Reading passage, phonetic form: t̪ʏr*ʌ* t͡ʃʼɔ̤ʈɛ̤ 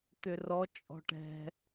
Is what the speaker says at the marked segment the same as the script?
no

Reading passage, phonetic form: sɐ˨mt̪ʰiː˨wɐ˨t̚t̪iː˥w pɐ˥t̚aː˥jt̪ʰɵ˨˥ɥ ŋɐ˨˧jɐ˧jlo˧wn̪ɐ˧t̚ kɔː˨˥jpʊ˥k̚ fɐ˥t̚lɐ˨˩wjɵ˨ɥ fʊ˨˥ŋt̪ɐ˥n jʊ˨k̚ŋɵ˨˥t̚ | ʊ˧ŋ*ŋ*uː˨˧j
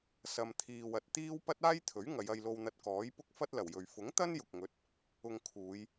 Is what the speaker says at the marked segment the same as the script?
no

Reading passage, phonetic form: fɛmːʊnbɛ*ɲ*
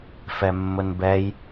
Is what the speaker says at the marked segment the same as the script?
no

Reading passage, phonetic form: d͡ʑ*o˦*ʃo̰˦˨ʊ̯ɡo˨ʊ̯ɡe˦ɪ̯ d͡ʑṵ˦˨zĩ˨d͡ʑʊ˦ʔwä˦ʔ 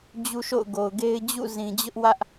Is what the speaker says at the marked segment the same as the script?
no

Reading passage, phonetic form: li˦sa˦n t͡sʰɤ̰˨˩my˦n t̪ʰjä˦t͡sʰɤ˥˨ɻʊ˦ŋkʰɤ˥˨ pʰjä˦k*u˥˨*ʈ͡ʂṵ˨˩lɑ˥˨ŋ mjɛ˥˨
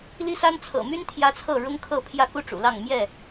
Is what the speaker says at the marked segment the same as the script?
no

